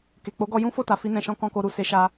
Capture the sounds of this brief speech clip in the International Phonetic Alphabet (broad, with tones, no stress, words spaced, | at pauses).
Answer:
ke˨ k͡po˨˦ɡɔ˧ jũ˦fo˦˨ ta˨fi˧nɛ̃˨ʃɔ̃˧ kɔ̃˨ ko˧ɾu˨ se˧ʃa˧